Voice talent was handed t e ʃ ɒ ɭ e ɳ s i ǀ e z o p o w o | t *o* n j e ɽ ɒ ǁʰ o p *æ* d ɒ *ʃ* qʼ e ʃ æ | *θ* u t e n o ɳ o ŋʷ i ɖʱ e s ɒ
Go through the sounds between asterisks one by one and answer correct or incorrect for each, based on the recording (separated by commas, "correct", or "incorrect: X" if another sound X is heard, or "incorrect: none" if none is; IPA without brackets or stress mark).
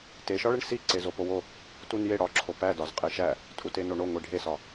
incorrect: u, correct, incorrect: z, incorrect: tʼ